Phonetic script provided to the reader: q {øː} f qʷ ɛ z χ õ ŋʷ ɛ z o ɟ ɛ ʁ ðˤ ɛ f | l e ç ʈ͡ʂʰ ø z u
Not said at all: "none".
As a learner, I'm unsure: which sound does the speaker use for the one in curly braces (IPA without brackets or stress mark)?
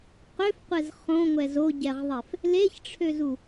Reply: ø